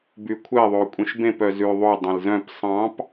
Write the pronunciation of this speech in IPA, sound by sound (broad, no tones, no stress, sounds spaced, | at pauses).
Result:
b y kʷʰ ɛ ðˤ o kʷʼ ĩ ʃ b ẽ p œ z ʉ ðˤ o dˤ ẽ l z œ̃ p sˤ ɑ̃ p